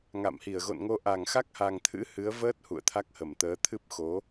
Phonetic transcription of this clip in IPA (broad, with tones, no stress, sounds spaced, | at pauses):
ŋ a̰˧˨ m h i˧˩ ə̯ ɣ o̰˧˨ n ŋ o˧ ʔ a˧˩ ŋ x a˦˥ k̚ h a˨˩ ŋ t̪ʰ ɨ̰˧˥ h ɨ˨˦ ə̯ v əː˦˥ t̚ h ṵ˧˨ ə̯ t̪ʰ a˦˥ k̚ h ə˧˩ m t̪ əː˨˦ t̪ʰ ɨ˦˥ p̚ x o˨˦